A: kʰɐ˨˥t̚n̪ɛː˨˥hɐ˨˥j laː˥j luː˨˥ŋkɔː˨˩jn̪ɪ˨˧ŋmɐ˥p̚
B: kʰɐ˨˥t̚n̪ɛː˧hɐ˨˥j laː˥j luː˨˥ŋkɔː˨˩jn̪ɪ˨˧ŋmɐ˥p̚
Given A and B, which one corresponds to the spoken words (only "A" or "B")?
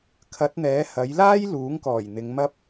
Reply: A